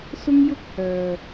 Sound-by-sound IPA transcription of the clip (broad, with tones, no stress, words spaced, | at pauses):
sʊ˥ŋjʊ˥k̚hœː˨